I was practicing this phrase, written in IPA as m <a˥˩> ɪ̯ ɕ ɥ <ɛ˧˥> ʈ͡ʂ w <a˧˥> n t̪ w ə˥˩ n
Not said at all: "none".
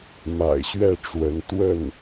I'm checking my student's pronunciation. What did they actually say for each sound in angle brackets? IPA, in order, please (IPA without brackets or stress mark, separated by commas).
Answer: a̰˨˩, ɛ˥˩, ə˧˥